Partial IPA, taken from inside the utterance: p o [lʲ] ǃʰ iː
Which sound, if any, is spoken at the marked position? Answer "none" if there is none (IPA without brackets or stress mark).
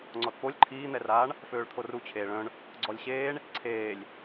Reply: lʲ